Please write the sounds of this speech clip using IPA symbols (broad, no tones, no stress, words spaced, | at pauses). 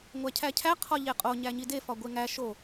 ŋʷæcʰæcʰæ qʰɒʎeqʼo ɲæɲide fɒɡʷeŋæ ʃo